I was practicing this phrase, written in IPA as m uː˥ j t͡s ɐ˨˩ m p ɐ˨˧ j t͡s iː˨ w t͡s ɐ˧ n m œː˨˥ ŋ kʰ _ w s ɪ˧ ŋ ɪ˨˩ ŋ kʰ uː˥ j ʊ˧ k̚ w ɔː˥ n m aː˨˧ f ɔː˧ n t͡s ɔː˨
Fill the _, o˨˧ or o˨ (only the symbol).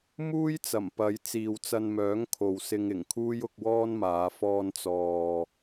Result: o˨